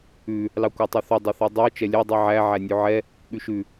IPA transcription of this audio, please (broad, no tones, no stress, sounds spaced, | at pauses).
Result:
ʉ | l ɑ kʷ ɑ tˤ ʉ θ ɵ dˤ ɵ θ i dˤ i u̯ t͡ʃ ɛ lʲ ɛ dˤ i ʕ æ ʕ æ nʲ ʉ ʕ ɛ | ɠ ʉ ʃ ʉ